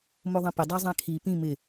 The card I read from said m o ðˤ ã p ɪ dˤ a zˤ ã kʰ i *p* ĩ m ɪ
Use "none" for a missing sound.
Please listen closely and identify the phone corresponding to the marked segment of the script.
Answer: p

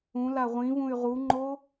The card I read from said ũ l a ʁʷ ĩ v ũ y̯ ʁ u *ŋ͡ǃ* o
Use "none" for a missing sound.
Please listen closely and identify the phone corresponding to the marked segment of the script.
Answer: ŋ͡ǃ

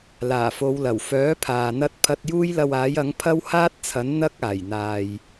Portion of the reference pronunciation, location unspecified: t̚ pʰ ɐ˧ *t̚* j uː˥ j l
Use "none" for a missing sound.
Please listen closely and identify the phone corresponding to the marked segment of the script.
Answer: t̚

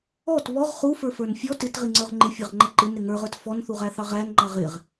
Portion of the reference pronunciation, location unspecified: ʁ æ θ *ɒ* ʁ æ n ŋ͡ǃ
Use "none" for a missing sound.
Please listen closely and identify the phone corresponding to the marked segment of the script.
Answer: ɑ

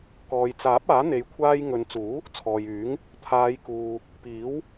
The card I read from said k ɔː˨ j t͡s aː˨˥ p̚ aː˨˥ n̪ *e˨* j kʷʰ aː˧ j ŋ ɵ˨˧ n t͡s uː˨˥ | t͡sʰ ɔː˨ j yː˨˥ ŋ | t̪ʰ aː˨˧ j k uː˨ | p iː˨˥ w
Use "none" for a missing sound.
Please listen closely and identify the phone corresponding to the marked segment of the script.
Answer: e˨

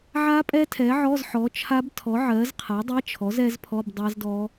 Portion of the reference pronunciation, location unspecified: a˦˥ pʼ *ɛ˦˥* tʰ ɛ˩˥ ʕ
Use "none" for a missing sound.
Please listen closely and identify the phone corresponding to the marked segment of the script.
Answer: ɛ˦˥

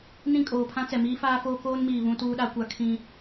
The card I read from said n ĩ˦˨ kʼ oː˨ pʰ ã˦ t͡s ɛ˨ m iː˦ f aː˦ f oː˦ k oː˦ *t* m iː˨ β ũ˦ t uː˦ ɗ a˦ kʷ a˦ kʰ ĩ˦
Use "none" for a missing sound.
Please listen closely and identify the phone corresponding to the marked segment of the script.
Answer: n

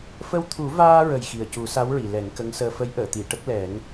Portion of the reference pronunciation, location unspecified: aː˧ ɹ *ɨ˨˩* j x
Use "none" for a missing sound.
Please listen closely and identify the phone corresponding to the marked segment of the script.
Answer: ə˨˩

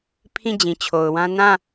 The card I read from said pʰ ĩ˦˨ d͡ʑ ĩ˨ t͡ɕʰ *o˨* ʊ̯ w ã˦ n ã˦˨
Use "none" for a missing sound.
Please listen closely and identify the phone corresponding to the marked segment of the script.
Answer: o˨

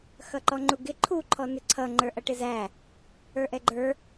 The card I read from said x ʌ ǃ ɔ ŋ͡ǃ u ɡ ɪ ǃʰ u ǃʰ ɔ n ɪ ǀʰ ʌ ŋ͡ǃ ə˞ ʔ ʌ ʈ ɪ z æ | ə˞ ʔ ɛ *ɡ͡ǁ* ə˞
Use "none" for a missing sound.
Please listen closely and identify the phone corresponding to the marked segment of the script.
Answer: ɡ͡ǃ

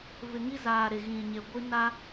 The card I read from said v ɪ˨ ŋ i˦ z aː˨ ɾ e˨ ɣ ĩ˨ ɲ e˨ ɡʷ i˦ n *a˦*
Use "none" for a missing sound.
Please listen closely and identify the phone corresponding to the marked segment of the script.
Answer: a˦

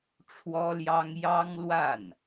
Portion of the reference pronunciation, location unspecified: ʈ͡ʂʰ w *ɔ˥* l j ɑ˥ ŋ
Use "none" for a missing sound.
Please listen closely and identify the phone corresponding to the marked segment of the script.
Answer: ɔ˥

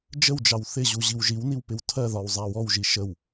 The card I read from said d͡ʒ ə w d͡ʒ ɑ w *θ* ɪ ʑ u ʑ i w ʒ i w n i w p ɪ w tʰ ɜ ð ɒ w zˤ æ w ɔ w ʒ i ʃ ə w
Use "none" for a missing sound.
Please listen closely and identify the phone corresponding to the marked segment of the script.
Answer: θ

